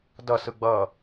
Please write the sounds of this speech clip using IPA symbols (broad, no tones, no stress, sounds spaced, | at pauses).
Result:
d ʌ s ɯ ɡ͡b ʌ